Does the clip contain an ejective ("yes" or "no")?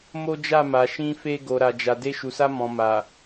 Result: no